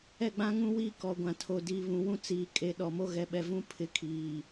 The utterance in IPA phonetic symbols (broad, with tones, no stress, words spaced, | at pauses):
ɛ˦˨ɡ͡bã˦ŋũ˦wiː˦ kɔ˨ ɡʷã˨tʰo˨ diː˨βũ˨wũ˦t͡siː˨ kʼe˨˦ɗɔ˨mo˦ ɣɛ˨ɓɛ˨vũ˦ pʰɪ˦kʰiː˨